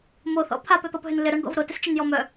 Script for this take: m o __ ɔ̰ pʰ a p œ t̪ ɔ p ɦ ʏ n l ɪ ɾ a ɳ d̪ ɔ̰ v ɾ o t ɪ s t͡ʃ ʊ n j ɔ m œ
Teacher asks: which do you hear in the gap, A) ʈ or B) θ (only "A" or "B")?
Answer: B